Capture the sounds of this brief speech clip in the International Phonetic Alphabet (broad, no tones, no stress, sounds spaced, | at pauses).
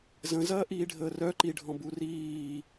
z ə̃ z ɐː ʔ iː ɖʱ əː r œ ǃ i ɖʱ ɔ̃ b u r iː